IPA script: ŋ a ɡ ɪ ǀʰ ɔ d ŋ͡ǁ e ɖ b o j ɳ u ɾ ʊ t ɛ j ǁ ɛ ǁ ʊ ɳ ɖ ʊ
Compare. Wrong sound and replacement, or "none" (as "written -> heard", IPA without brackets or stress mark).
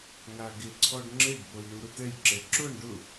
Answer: d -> ɖ